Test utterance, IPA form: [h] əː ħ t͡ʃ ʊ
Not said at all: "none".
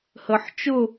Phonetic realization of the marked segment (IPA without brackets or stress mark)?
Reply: h